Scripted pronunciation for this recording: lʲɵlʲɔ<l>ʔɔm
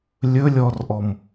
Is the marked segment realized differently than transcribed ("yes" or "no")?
yes